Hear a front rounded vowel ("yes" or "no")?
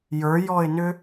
yes